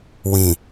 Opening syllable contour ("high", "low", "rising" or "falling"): low